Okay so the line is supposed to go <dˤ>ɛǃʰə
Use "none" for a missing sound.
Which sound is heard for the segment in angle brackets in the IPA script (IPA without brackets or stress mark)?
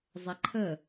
zˤ